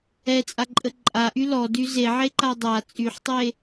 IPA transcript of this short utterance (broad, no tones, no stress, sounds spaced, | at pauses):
ɛ t͡sʼ a ǃʼ ə ǃʼ a ʔ y l ɔ d y z e ʕ e ǃ a dˤ a t͡sʼ y ħ tˤ e